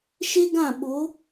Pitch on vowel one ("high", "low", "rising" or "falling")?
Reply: high